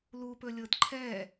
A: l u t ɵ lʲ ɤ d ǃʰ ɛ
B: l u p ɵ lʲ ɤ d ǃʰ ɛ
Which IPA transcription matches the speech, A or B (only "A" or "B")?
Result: B